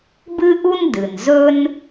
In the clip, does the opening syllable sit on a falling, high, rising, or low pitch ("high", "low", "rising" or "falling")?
high